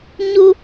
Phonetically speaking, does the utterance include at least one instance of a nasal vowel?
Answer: no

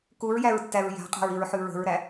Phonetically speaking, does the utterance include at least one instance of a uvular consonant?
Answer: yes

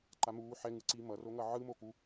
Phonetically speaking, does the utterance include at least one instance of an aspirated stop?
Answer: no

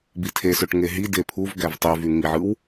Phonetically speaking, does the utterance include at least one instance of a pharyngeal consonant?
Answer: yes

